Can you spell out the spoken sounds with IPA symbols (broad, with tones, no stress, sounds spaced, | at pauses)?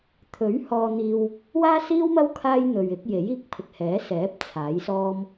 t̪ʰ ɵ˨˥ ɥ h ɔː˧ n̪ iː˧ w | w aː˥ s iː˥ w m ɐ˥ w kʰ aː˥ j n̪ ɵ˨ ɥ ɪ˨˥ k̚ j e˨˥ j iː˧ k̚ pʰ ɪ˨ k̚ h ɛː˨˥ s ɛː˨˥ p̚ t͡sʰ aː˨˥ j s ɔː˥ m